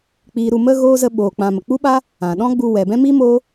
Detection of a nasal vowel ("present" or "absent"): present